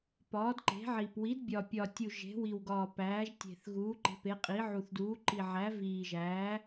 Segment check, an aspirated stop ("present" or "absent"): absent